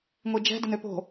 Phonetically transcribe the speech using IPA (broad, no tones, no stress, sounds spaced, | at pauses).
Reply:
ŋʷ i d͡ʒ ɛ̤ d ə n ø p o̤